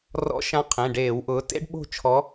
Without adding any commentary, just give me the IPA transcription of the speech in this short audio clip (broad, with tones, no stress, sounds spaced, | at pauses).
r ɔ̰˨˦ ʃ ã˨˦ qʰ ẽ˩˧˩ ɖ eː˧˩˧ w ʔ ʊː˨˦ t ḛ˦˥ ɖ ɓ o̤˦˨ t͡ʃʰ ɔ˨˦